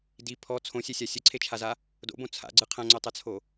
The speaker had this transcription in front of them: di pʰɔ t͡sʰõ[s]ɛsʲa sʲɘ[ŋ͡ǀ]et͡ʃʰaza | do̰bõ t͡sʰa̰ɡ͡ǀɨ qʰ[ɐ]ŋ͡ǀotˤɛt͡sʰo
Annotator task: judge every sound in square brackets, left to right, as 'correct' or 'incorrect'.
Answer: incorrect: sʲ, incorrect: ǀʰ, incorrect: ɐ̃

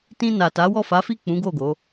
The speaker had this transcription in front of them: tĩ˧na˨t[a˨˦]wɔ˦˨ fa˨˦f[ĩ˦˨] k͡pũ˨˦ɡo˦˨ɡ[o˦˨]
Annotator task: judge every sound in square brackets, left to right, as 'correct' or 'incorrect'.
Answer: correct, incorrect: i˦˨, incorrect: o˨˦

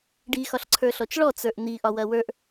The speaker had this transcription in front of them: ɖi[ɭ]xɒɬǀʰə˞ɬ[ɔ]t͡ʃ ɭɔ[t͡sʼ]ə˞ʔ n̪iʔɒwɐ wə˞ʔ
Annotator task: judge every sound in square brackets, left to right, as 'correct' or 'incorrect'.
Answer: incorrect: none, correct, incorrect: t͡s

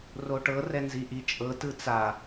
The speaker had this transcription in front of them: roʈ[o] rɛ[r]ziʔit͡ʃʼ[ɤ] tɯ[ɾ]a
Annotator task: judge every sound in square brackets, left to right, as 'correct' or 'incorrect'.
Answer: incorrect: ɤ, incorrect: n, correct, incorrect: t͡s

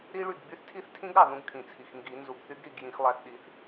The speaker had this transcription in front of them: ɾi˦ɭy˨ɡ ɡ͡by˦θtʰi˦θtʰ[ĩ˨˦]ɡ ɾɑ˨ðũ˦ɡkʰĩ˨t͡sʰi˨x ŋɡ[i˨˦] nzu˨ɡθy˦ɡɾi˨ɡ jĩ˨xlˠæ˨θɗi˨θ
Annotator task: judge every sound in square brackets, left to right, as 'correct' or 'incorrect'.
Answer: incorrect: ĩ˦, correct

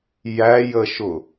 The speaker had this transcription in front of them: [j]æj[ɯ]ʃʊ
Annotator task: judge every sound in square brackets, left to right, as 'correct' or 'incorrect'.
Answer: correct, incorrect: ə

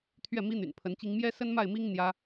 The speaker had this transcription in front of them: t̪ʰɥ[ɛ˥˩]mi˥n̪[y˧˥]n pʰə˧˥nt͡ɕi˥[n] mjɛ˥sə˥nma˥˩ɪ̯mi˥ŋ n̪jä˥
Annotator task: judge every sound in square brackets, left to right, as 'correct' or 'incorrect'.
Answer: correct, incorrect: y̰˨˩, incorrect: ŋ

